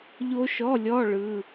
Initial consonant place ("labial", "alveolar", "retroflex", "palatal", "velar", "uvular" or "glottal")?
palatal